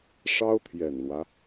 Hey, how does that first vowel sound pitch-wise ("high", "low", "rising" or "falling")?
high